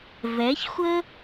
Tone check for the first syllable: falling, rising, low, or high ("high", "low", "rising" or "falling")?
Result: rising